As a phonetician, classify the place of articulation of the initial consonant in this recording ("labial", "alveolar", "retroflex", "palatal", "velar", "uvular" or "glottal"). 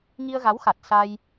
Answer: velar